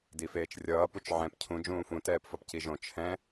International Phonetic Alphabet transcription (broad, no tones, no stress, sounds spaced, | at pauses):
d i f eː t͡ʃ rʲ ʌː p u t͡ʃ ʕ ɛ̃ p cʰ ũ d͡ʒ ũː f ũ t ɛː p f ʌ p c i ʒ õ t͡ʃʰ ɛ̃